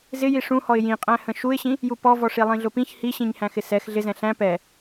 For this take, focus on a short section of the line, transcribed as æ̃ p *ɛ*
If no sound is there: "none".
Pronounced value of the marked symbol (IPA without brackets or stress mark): ɛ